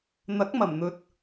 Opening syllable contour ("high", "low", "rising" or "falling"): rising